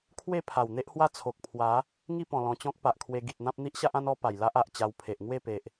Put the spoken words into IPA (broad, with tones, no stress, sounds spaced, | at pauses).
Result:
kʰ w e˥˧ pʰ a˨˩ w n̪ e˦ ʔ h w a˦ t͡sʰ o˨ k̚ pʰ w a˨˦ | ŋ i˥˧ p ɔ̃˨˩ l ɔ̃˧ t͡ɕ ɔ̃˦ k̚ p a˨ ʔ kʰ w e˧ ɡ i˨ t̚ n̪ ã˦ p̚ n̪ i˦ ʔ ɕ a˦ ʔ ã˦ n ɔ˧ p a˨˩ j l a˦ ʔ a˨ ʔ t͡ɕ a˧ w pʰ e˨ ʔ ŋ w e˥˧ p e˨ ʔ